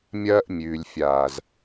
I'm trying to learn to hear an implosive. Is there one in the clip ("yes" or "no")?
no